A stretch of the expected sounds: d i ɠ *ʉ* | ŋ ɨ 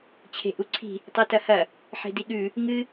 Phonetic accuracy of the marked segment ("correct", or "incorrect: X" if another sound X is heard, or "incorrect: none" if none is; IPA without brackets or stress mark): correct